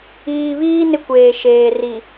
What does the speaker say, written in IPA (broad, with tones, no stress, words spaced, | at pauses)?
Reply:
iː˨βiː˦ nɪ˦kʷeː˨ʃeː˨ ri˨